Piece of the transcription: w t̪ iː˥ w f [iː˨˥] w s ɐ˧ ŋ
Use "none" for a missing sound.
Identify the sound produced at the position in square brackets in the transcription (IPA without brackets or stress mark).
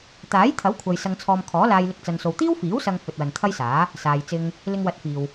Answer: iː˨˥